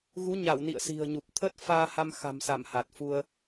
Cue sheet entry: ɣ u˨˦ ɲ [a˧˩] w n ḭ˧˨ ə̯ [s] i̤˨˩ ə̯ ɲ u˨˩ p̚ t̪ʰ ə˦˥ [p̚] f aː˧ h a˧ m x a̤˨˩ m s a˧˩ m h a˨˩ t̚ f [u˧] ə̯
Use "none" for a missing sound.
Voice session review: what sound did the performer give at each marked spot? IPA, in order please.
a˧˩, s, t̚, u˧

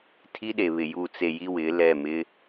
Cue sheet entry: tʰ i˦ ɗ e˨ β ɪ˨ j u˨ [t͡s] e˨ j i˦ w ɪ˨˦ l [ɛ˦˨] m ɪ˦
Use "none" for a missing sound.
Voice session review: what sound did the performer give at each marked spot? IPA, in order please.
t͡s, ɛ˦˨

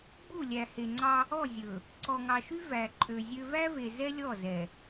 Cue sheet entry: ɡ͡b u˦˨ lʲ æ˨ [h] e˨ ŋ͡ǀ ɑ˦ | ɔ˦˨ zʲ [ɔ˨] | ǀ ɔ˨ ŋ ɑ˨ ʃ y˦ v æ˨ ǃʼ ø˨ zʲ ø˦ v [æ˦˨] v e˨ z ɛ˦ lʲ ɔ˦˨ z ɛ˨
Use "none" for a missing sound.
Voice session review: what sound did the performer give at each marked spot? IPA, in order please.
h, ɵ˨, æ˦

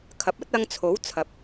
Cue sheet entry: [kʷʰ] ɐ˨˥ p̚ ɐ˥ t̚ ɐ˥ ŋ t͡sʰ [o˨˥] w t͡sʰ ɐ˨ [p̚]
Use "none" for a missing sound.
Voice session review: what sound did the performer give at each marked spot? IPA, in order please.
kʰ, o˨˥, p̚

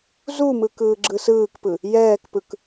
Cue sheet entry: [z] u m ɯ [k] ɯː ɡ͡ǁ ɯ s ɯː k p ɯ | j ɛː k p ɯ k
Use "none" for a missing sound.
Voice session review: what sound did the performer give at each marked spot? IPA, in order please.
z, k

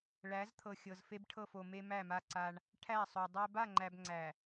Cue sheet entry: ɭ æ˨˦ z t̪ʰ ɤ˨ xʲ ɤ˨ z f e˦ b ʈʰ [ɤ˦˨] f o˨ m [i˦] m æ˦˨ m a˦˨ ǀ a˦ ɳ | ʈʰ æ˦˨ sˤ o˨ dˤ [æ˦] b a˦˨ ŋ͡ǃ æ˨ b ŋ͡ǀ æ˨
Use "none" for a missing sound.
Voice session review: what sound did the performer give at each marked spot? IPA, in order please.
ɤ˦˨, e˦, æ˦

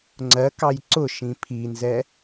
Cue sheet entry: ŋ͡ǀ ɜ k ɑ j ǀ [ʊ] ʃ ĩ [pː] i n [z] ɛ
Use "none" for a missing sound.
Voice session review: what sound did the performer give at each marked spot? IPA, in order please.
ʊ, pʰ, z

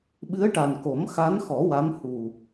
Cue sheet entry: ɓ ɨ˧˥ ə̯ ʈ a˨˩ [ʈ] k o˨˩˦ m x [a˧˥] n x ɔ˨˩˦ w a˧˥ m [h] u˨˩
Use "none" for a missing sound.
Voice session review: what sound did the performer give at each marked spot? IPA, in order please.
n, a˧˥, h

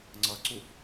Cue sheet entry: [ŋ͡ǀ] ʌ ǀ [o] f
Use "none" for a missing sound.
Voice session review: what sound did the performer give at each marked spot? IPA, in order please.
ŋ͡ǀ, u

